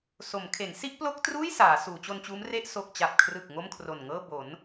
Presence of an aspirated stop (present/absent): present